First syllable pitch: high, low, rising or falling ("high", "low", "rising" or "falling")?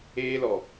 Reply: high